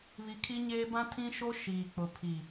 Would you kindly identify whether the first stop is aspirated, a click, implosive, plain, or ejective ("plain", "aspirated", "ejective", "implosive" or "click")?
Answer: aspirated